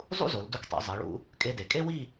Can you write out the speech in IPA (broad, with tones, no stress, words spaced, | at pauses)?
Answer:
zˤṵ˥zo˩˧l du˧ktˤḭ˩˧ zˤi˩˧ ɭṵ˧ | kʼe˧de˩˧kʼe˥wi˥˧